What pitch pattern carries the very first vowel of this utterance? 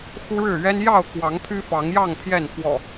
high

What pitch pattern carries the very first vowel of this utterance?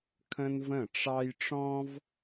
high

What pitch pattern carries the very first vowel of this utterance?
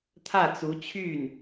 falling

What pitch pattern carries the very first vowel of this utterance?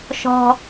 high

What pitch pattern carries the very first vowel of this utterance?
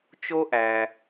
high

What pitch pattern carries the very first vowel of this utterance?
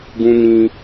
high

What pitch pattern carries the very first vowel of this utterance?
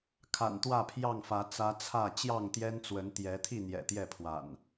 low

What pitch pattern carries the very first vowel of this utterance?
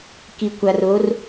low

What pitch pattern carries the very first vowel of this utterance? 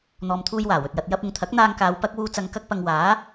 low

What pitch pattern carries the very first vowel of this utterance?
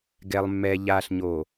low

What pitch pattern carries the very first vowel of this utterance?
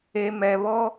low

